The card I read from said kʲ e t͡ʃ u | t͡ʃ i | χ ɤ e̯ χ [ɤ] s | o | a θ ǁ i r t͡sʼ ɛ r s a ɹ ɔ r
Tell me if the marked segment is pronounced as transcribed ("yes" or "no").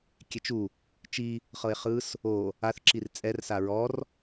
no